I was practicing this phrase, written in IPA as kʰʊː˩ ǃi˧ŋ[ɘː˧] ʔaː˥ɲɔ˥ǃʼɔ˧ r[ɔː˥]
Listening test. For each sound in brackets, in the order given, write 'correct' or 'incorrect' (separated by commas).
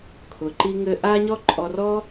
correct, correct